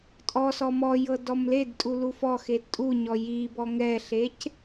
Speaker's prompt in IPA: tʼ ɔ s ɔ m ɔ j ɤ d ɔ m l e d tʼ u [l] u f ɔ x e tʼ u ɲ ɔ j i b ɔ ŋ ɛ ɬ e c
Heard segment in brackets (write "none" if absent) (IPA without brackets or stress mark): l